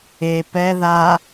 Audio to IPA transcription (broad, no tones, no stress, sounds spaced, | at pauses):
e p ɛ ð a